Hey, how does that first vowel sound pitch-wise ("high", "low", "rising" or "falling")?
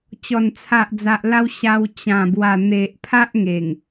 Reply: low